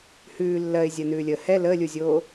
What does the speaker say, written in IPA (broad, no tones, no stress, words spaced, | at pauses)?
hʉː lːɜɪ̯zʲɜnʉːlʲəː hɛ ləːlʲuzʲoː